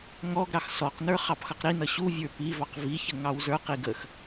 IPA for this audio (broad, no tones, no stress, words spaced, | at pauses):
ŋɔɡɾɑx sɔqnə˞ χɑpxʌqɾinʌ ɕuvʲə˞ pivɑq viçə ŋɑwzə˞qi ɡəx